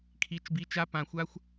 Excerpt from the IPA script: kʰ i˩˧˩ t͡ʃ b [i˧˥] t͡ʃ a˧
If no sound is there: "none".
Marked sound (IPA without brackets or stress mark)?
i˩˧˩